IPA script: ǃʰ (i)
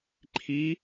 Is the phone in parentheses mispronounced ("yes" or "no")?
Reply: no